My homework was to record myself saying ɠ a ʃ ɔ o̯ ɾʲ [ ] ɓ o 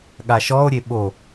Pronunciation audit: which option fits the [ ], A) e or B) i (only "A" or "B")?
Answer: A